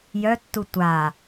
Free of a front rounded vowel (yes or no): no